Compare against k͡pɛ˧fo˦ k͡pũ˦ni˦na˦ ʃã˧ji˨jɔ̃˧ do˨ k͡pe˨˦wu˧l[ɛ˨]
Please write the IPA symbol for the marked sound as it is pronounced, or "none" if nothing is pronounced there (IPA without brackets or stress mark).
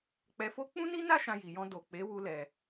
ɛ˨